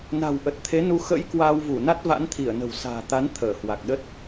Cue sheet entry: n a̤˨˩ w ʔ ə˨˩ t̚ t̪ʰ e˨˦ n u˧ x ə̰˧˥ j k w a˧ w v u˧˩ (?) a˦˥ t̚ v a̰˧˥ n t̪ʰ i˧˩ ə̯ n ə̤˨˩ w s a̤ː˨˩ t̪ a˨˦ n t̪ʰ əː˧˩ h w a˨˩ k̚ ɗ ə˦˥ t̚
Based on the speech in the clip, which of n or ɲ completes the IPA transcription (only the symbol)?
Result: n